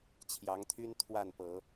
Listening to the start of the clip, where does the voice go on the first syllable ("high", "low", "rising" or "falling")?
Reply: rising